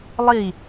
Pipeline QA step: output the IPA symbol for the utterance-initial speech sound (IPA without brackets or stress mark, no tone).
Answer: lˠ